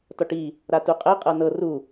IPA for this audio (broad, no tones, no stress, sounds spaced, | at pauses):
t ɔ ʈ i | ɾ a t u qʼ ɛ qʼ ɤ n ɤ r u